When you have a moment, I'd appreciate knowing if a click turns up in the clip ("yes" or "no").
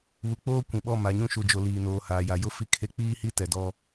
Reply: no